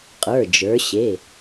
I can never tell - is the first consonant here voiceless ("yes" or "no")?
yes